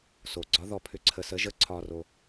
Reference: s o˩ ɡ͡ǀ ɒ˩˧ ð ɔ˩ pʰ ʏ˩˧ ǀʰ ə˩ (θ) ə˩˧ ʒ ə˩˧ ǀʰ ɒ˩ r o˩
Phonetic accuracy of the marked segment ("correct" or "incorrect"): incorrect